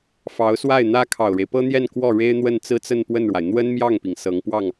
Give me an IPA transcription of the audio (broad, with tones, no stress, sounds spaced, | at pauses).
f ɑ˧˥ ʊ̯ s w a˥˩ ɪ̯ n̪ ä˥ kʰ ɑ˨˩ ʊ̯ ɻ e˦ ɪ̯ p ɤ˥ n̪ j ɛ˥˧ n k w ɔ˥˩ ɻ e˥ ɪ̯ n̪ w ə˥˧ n t͡s ɹ̩˥˧ t͡s ə˥˧ n p w ə˥˩ n ɻ w a˩ ɪ̯ n̪ w ə˥ n m j ɑ˥˩ ŋ p i˩ ŋ s ɤ˧˥ ŋ p w ɑ˥˩ ŋ